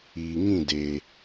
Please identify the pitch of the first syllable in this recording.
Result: low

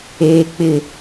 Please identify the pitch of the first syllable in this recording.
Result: low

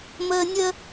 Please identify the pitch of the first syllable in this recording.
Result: high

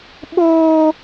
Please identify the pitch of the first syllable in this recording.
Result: high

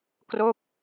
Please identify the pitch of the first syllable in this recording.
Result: falling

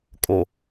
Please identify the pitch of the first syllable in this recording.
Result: low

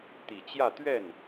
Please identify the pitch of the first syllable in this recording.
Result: low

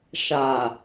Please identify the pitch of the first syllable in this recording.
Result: low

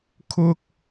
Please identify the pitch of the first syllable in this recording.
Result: high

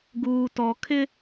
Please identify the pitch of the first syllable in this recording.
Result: low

